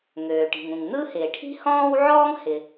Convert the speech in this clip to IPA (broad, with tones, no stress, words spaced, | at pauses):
ŋøː˩ʈi̤˩ŋũ˩ŋ n̪ɯ˥hɪː˩ ʈʰi̤˥hɔ̃ː˥wʕɔː˥ŋ hɪ˩